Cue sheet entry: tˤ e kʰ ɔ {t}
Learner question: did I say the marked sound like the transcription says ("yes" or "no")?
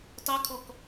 no